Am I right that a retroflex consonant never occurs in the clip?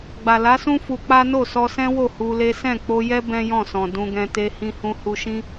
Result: yes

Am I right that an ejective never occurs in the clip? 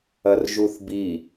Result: yes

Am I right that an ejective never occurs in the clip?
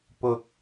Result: yes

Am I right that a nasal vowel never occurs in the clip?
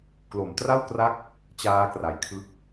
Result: yes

